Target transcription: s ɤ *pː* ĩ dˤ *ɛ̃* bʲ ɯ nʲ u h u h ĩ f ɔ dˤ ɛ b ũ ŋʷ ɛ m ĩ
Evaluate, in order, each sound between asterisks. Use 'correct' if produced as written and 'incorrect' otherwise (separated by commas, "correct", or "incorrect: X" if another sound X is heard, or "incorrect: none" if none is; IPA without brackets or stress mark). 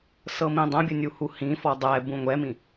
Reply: incorrect: m, correct